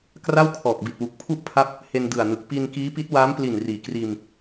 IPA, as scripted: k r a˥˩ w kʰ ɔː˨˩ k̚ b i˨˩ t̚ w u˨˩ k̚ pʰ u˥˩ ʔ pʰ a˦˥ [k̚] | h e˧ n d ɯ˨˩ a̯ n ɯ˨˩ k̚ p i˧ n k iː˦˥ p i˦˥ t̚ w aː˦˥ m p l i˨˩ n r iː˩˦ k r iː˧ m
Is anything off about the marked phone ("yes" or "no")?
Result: yes